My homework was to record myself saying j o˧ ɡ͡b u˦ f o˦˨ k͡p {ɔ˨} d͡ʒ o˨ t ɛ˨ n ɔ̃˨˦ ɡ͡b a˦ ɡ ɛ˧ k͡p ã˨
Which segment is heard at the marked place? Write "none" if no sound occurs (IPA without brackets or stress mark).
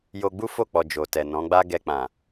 ɔ˨